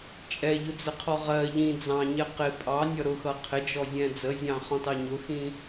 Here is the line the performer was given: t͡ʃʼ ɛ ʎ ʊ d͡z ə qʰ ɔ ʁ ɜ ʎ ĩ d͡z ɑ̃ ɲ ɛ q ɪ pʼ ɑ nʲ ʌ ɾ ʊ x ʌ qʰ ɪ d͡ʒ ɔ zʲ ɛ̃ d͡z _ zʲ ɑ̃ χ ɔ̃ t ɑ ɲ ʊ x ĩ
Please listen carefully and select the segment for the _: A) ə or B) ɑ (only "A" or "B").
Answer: A